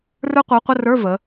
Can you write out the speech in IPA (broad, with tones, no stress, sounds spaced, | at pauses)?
r ə˞˦˥ qʷ ə˞˨˥ qʷ ə˧˥˧ r ə˞˧˥˧ v ə˩˧